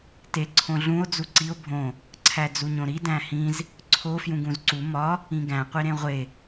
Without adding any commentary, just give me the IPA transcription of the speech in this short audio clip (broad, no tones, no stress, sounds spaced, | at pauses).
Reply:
t e ǀʰ õ ɮ ũ o̯ d͡z u ǀ i o̯ bʱ õ | ǀʰ æ d͡z u ɲ õ ɾ i d æ̃ h ĩ z | ǀʰ o f j ũ ɡ ũ z ǀ u m ɒ | ĩ ɡ æ̃ qʷ i ɾ ẽ ʁʷ e